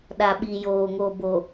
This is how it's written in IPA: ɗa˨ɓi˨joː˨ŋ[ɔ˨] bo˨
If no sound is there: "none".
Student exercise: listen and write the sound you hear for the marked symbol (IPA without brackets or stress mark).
o˨